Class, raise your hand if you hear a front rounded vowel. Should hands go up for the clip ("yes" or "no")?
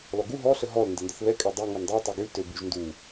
yes